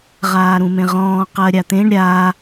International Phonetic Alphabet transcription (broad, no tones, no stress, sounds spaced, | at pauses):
ʁ aː ɾ ũ m ẽ ʁ ɔ̃ː q ɜ ɾʲ a t̪ ẽ ɳ ɾʲ a